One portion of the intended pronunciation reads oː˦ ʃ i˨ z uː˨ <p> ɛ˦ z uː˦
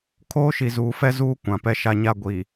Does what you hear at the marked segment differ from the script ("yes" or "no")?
yes